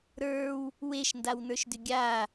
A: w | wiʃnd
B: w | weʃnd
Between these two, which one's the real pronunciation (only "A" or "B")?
B